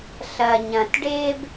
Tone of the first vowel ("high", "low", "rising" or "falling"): low